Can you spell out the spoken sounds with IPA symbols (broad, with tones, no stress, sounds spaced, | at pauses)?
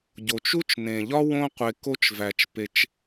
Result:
ɟ o˩ t͡ʃ u˥ t͡ʃ n ẽ˩ ʎ ɒ˥ w õ˥ qʷ e˨ k o˦ t͡ʃ v æ˩ t͡ʃ p e˨ t͡ʃ